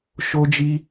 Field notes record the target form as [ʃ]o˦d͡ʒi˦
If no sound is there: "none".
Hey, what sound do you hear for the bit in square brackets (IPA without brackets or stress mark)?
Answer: ʃ